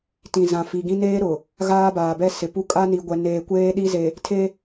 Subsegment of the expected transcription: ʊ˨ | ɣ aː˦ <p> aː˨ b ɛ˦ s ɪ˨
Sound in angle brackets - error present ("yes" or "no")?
yes